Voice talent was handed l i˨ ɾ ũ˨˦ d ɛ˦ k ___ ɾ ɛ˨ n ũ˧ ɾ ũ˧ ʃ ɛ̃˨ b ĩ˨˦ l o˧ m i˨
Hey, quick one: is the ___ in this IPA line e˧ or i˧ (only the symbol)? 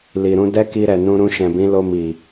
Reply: i˧